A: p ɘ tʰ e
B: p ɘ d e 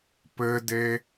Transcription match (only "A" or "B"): B